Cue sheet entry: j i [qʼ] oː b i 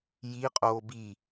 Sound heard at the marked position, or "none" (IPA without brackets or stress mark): qʼ